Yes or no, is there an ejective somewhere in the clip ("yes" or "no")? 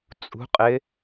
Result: yes